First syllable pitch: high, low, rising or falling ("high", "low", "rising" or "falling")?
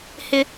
high